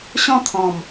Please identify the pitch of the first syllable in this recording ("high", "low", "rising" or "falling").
falling